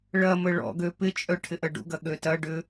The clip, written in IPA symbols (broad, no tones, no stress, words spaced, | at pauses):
ɭɐmə ɭɔ̰ɡø pɪt͡ʃʼœ ʈʰɪʔɐɖṵɡɐ ɠøtɐɖʏ